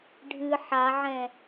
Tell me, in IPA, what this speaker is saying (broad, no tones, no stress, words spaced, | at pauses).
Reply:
ɖʱɨ ħaʕɛ̃